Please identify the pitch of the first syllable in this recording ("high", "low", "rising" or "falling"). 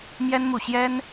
high